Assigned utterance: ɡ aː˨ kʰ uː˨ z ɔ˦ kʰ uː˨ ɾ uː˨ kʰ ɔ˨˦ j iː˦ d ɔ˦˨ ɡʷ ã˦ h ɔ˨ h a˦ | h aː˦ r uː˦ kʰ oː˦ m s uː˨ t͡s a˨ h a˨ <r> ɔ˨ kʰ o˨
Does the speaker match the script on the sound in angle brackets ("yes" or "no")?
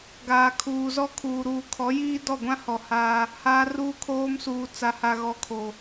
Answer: no